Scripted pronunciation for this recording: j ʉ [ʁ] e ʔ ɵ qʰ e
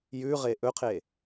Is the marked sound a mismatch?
no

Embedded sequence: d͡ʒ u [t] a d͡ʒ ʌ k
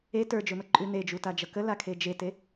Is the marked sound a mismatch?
no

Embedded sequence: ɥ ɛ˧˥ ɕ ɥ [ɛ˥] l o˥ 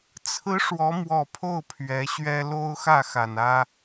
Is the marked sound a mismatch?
no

